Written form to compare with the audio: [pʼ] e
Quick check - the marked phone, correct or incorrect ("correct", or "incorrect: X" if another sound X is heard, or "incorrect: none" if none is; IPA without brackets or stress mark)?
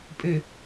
correct